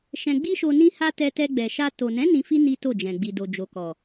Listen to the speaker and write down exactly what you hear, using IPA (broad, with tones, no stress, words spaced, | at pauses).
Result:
ʃɛ̃˧ɡ͡bi˦ʃo˧ nĩ˦ha˦ tɛ˧tɛ˧ɡ͡bɛ˨ʃa˧ to˨nɛ̃˨˦ nĩ˧fi˦ ni˦to˦˨d͡ʒɛ̃˨ ɡ͡bi˨ do˨d͡ʒo˨kɔ˨